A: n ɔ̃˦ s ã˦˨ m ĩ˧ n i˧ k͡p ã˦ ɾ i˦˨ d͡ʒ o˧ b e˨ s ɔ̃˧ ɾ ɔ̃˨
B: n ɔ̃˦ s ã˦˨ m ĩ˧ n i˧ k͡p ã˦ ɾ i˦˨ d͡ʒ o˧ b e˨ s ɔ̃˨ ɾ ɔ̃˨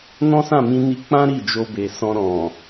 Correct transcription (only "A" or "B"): A